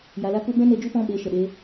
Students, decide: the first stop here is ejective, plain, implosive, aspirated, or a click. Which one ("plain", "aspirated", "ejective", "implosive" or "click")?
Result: plain